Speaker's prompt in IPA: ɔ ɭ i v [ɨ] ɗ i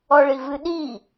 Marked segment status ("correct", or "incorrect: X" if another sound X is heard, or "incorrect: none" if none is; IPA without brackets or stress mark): correct